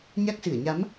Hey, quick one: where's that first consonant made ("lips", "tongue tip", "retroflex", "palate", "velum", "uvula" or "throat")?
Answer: palate